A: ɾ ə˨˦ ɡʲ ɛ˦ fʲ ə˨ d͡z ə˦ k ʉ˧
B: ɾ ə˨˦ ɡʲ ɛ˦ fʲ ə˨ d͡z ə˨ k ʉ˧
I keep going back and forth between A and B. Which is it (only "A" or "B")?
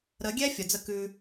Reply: A